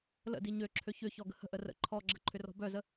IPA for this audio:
l ə̰ d i ɲ ø ǁʰ ø ç ʏ ç ɔ ɡ ə̤ h ə̤ ʔ ə r ə̰ ǃʰ ɔ ɡ͡ǁ ə ǃʰ ʏ r ɔ̤ b œ z ə

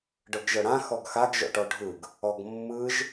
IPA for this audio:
ɖ ɤ ɡ ʒ ɤ ɽ ã x ɔ ɡ x a ɡ ʒ ɔ̰ ʈ ɔ ɖʱ ɯ ɡ | ɔ ɡ mː ɯ ʒ

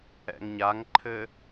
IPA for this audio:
ɛ̰ ŋ ɲ a ŋ ǃʰ ɘ

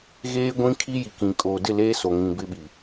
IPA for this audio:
ɣ eː˦ ɡʷ ĩ˦ kʰ i˦ j i˨ k ĩ˨ kʼ oː˨ d ɪ˦˨ l eː˦ s o˨ ŋ ĩ˨ b ɪ˦ ɓ i˨

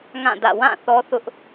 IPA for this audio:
ŋ ã˦˨ d ä̰˦˨ w ã˦˨ θ ɔ˦ θ ʊ˦ ʔ

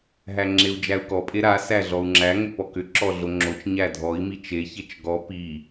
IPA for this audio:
ɦ æ ŋ͡ǁ e u̯ d͡ʒ æ u̯ k ɔ pʼ e ɾ a s æ ɮ ɔ u̯ ŋ͡ǁ æ ŋ ʏ p ɔ k ʏ ǁ ɔ ɮ o ŋ͡ǁ o t͡ʃ ɲ æ dʱ ɔ i̯ m i t͡ʃ e ç e t͡ʃ ɡ ɔ p i

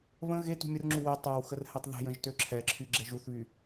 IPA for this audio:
β ə̃ ɣ e t ṳ mʲ ə r ŋ͡ǁ u w e tˤ ɐ w x ə r h ɛ tˤ ð ɛ̤ j ə̃ ʒ t ø ǁʰ ɛ ǁʰ y ɡ͡ǁ ɛ ʒ u θ β y

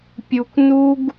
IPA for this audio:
pʲ u˧ kʷ n u˦ ɡ

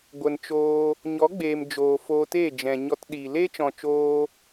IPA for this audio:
ɡʷ ə˨ n t͡ʃ oː˧ | ɲ ɔ˨˦ ɡ͡b eː˨ m d͡ʒ oː˨ f oː˧ t e˦˨ d͡ʒ ɛ̃˨ ɲ ɔ˧ t ɗ i˨ l e˦ t͡ʃ ɔ̃˨ t͡ʃ oː˧

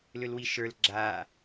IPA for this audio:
l ʏ l w i ʃ ə˞ l ɡ͡ǁ a

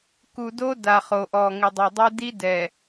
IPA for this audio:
k u˨ d o˦ d a˨ χ o˨ ʔ ɔ˨ ŋ ɪ˨ dˤ o˨ dˤ u˦ d i˦ d ɛ˨

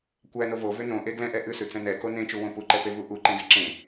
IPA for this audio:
kʷ æ n o v o v ʏ n õ ʔ e ɡ l ɛ̃ ʔ ɛ ʔ ʉ s ʉ t͡s ɛ̃ n ɛ k o n ẽ t͡ʃ u w õ p u ǃ ɛ p e v u ʔ u ǃ ẽ ɡ e ǁ ẽ

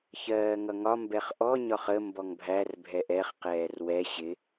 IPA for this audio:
ç ɜː ŋ ʌ ŋ ɒ m b ɛ χ ʔ ɔ ɲ ɒ χ ə m b ɔ ŋ bʱ æ r bʱ ɛ ʔ ɛ χ q ɛː r w ɛ ɕ ɪ

